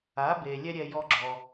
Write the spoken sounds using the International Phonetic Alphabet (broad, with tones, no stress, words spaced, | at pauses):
a˩˥be˩ lʲɛ˥ ɾʲɛ˧ jɔ˥ɡ͡ǁɔ˩